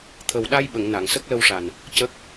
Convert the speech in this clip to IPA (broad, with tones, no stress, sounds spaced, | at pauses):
t̪ʰ ə˨˩ w ɗ a˧ j ɓ ə˨˩˨ ŋ n a˨˩˨ ŋ s ə˦˥ k̚ l ə˧ w ʂ a˨˩ n | c ə˦˥ k̚